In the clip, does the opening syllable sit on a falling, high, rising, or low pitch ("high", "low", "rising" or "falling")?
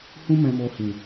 high